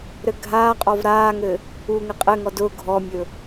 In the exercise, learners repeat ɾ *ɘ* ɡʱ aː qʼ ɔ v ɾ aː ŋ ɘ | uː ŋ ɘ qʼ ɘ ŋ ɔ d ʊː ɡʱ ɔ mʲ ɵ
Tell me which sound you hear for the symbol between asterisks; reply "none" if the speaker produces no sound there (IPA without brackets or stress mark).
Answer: ɘ